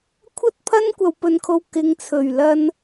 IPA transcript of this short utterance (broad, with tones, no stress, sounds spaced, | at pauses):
kʷʰ ɐ˥ t̚ pʰ ɐ˥ n kʷ ɐ˧ w p ɵ˧ n kʰ o˧ w k ɪ˨˧ ŋ t͡sʰ ɵ˨˩ ɥ l ɐ˧ n